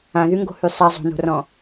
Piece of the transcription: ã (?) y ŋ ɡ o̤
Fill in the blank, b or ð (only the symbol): ð